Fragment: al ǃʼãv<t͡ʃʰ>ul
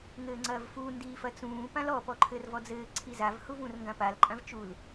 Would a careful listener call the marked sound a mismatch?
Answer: yes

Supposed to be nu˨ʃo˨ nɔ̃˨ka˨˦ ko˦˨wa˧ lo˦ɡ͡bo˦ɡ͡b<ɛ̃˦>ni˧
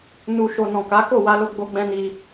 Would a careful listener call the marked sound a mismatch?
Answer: no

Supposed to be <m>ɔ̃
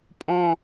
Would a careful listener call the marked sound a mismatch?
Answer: yes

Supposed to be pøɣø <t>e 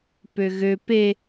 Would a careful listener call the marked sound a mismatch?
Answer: yes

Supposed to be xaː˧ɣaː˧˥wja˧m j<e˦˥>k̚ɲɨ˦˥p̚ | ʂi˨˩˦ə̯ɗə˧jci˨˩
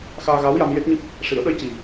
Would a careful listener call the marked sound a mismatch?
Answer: no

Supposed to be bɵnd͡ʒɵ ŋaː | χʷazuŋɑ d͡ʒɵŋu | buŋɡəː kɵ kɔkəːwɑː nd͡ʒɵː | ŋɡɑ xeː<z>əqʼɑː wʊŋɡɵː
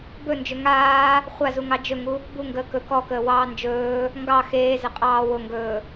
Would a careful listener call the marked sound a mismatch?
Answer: no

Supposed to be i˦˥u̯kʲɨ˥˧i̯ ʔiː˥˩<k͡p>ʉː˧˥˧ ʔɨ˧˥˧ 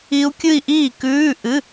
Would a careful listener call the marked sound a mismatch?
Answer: yes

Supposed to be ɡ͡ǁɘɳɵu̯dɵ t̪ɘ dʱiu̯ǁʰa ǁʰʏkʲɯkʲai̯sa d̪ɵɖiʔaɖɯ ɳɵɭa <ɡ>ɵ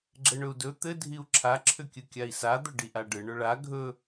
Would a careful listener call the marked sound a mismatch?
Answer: yes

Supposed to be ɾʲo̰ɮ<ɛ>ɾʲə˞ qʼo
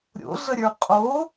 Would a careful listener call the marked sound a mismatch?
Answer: yes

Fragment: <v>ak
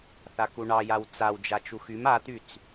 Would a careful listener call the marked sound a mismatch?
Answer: yes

